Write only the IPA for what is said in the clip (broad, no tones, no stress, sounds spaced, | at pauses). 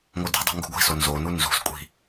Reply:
ŋ o d i̤ dˤ ṳ ŋ ɡ ṳ ɡʷ i̤ s o n z o n u n z ṳ s kʷʼ i̤